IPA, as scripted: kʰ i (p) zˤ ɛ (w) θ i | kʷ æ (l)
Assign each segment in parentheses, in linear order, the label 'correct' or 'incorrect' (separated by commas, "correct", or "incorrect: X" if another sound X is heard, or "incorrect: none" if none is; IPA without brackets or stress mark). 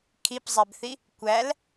correct, incorrect: b, correct